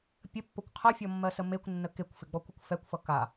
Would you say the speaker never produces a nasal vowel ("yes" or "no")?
yes